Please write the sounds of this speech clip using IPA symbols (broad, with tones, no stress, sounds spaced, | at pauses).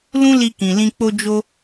l ũ˦ l i˧ k ĩ˨ l ĩ˧ k͡p o˧ d͡ʒ o˧